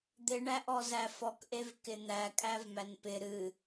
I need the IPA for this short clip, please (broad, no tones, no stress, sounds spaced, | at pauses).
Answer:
d̪ ɪ ɳ æ ʔ ɔ z æ f ɔ k ʔ e v k ɪ n̪ æ kʼ æ v m æ n p ɪ ɾ ɨ